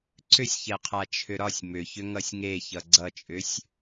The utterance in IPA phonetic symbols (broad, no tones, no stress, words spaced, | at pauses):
ǀʏsʲçɛqʰa t͡ʃʰʏɾɒsʲ mʏçʏ ŋʌsʲŋe çʌɡ͡ǀʌt͡ʃʼʏsʲ